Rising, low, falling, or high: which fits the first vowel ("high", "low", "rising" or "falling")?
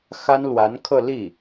high